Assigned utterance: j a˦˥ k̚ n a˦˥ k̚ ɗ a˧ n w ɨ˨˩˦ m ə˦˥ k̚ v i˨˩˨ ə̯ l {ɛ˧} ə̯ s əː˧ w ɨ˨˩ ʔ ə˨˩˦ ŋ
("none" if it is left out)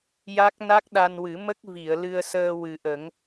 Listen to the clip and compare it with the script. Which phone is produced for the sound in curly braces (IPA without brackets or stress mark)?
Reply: ɨ˧